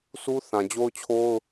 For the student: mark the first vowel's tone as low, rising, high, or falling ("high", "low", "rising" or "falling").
high